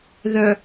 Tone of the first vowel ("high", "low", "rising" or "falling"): low